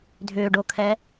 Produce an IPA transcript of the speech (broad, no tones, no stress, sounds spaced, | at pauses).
dʱ ʏː ɖ o kʰ ɛ